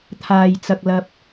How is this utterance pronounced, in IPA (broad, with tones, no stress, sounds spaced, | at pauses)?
t̪ʰ aː˧ j t͡s ɐ˧ k̚ l ɐ˥ p̚